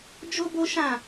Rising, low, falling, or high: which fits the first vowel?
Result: high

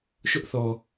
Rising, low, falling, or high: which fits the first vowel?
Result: high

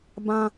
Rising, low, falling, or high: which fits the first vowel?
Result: high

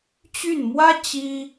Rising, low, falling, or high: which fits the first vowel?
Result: falling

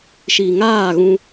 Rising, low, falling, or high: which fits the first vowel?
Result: low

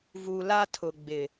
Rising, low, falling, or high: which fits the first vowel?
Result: low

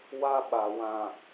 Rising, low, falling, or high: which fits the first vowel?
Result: high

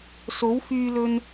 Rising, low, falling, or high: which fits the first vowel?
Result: rising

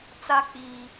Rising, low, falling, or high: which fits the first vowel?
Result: high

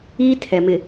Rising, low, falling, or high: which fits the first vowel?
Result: high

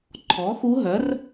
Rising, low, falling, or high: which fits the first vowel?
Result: rising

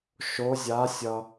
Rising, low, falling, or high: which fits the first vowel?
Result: rising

